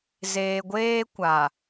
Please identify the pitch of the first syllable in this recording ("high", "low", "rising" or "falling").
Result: low